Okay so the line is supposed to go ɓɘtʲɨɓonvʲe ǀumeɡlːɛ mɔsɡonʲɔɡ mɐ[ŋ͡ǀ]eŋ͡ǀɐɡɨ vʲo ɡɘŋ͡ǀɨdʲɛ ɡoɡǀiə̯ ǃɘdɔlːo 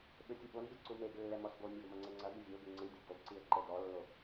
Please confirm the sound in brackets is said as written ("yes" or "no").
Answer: yes